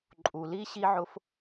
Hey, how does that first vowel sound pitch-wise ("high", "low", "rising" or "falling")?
low